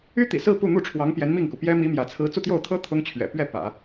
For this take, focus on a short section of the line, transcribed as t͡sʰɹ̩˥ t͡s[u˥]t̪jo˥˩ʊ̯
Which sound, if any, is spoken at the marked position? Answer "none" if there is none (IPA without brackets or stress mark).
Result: u˥˧